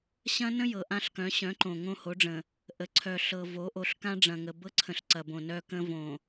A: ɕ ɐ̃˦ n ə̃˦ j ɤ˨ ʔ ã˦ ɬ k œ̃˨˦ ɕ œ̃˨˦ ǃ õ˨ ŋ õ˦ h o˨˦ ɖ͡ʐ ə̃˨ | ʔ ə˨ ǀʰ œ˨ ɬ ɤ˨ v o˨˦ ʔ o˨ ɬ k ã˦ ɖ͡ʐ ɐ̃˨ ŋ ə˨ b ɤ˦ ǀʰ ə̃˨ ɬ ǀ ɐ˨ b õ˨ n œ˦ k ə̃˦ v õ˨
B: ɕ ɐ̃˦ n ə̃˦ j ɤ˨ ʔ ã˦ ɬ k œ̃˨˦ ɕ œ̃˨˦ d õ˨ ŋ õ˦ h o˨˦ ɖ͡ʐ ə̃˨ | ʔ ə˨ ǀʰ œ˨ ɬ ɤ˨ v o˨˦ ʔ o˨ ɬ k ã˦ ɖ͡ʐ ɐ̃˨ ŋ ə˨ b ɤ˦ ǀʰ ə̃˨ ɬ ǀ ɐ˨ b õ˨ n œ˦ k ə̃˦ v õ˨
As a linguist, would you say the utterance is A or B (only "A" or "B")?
A